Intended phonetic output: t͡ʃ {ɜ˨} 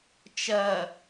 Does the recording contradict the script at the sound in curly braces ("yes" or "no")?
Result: no